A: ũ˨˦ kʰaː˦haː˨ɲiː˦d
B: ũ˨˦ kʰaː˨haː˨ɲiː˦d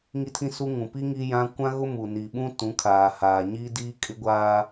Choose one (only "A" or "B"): B